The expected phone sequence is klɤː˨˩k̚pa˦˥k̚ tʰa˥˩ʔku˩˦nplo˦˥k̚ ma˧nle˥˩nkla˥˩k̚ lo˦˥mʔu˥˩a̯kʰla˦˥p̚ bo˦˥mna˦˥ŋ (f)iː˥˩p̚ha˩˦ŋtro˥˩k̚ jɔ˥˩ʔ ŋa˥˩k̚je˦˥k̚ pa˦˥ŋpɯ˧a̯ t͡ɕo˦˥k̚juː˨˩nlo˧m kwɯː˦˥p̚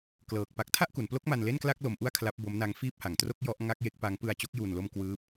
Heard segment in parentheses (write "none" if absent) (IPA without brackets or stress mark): f